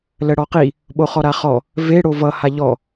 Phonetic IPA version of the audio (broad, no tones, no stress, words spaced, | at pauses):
ləɽɔqi | ɓoχɔɾaχɔ | ve ɽovʌ haʎɔ